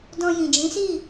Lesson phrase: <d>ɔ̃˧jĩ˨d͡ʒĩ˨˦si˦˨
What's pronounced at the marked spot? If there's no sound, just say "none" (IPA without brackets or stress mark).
d